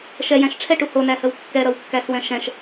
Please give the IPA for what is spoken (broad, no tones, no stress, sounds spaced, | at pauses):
ʃ ɛ j æ̃ ʃ ʈ͡ʂʰ ɛ ʈ u h o n æ h ə w kː ɛ ɾ ʌ w kː æ s w ɛ̃ ʃ ɛ̃ ʃ